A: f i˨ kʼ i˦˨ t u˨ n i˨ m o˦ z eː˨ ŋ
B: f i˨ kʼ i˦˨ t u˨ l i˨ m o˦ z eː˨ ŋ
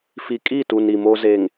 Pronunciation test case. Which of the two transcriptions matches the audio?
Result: A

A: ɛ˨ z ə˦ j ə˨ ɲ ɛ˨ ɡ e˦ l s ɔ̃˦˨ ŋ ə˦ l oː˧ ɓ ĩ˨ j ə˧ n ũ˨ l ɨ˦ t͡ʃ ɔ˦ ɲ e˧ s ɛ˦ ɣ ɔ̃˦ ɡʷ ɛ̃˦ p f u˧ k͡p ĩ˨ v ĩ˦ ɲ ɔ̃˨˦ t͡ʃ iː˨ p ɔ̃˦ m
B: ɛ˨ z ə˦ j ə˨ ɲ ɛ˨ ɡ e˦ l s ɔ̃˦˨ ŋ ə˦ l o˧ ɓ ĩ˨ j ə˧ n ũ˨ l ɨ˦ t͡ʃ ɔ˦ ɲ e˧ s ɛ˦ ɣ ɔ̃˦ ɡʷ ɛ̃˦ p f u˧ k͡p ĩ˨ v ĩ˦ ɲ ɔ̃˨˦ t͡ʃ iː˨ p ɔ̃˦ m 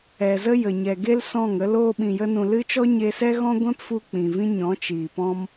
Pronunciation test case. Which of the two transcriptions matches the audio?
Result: A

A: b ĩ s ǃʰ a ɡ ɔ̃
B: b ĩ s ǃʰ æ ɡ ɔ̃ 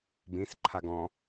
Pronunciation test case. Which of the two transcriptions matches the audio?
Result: A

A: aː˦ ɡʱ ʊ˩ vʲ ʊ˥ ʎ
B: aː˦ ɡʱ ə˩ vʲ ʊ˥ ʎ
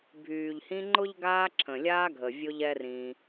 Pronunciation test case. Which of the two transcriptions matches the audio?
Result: B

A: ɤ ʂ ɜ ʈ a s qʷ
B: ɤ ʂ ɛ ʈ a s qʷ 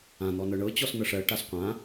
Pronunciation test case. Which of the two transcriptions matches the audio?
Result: A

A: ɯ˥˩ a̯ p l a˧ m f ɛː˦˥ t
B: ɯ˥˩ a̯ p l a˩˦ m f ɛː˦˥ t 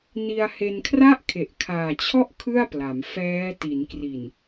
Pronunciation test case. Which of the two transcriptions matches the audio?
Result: B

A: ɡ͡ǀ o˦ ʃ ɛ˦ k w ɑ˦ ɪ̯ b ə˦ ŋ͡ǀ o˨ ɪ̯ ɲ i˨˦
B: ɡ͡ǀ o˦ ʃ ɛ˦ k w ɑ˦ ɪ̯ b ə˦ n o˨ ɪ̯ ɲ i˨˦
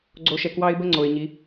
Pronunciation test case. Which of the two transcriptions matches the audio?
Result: A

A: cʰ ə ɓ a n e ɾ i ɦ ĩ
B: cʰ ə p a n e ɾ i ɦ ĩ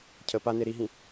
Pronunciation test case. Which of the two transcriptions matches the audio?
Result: B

